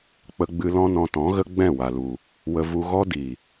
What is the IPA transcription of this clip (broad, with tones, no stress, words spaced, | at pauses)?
k͡pə˧ɡ͡bɨ˧ lɔ̃˦nɔ̃˧tɔ̃˨˦ɣə˦ ɡ͡bɛ̃˦˨ wa˨lu˨ | wə˧vu˧ɣɔ˦ di˨